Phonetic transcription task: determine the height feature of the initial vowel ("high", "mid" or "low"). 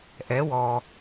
mid